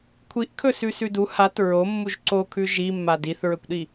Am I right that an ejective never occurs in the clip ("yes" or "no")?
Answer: yes